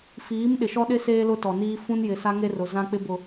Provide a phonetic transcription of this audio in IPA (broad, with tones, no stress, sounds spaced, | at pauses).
f iː˨˦ m ɗ ɪ˨ ʃ ɔ˦ ɗ ɪ˦ s eː˦ l ʊ˦ t ɔ˨ n iː˦ f ũ˦ n j ɪ˨ s a˦ ŋ e˦ r ʊ˨ z ã˦ k͡p ɪ˦ b ʊ˨